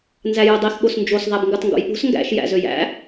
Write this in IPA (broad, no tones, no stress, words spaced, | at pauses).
nzæjodˤix ɠosnd͡ʒos ðˤæbŋɡɯtˤŋɡo̰jɓo̤s ŋɡæ̰ʃ jæ̰zøjæ̰